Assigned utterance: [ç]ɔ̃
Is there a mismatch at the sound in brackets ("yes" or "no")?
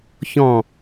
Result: no